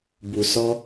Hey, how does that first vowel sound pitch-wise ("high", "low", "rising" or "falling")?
low